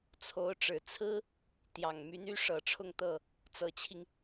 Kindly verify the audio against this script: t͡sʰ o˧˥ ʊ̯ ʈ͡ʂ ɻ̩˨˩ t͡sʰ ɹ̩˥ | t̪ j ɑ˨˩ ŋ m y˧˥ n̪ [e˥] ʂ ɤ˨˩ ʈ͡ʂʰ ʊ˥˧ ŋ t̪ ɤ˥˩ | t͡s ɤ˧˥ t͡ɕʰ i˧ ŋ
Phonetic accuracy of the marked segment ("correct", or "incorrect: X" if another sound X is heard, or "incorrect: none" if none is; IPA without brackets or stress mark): incorrect: y˥